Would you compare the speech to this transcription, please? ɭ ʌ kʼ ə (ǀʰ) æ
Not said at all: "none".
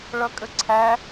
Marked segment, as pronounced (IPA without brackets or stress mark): ǀʰ